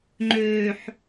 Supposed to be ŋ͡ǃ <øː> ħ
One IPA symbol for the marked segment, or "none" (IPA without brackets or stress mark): øː